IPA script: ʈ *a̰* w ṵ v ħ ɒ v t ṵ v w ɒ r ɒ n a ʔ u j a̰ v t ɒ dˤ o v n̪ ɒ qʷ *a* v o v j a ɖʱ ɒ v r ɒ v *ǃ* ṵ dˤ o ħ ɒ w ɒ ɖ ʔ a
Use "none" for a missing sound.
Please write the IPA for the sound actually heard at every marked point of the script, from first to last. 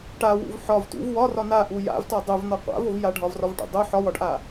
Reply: a, a̰, ʈ

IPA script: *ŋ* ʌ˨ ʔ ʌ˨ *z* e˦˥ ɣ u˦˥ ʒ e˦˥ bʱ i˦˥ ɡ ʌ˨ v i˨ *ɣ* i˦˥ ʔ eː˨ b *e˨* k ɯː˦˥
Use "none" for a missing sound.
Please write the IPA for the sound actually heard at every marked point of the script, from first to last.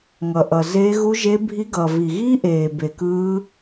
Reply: ŋ, z, ɣ, e˨

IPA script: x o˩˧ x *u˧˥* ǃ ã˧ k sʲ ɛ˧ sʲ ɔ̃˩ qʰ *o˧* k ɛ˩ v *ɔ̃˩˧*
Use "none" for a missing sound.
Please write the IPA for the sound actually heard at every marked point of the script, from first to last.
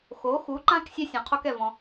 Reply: u˩˧, o˧, ɔ̃˩

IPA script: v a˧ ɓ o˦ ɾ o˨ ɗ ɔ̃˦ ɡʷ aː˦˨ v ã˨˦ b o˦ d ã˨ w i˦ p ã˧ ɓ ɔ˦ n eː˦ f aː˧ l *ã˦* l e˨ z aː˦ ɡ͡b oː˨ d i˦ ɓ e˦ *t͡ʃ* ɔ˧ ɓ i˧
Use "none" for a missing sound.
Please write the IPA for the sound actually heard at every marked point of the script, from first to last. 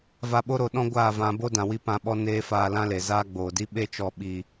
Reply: ã˦, t͡ʃ

